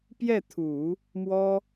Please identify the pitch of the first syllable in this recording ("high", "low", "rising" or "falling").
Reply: falling